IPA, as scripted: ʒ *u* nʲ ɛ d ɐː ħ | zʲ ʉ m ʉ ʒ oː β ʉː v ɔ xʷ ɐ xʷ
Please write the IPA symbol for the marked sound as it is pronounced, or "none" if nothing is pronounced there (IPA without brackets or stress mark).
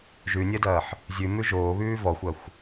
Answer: ʉ